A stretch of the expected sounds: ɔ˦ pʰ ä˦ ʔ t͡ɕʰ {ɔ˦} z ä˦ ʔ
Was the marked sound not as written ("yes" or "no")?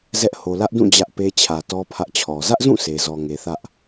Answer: yes